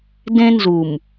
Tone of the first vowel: high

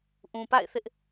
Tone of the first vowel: low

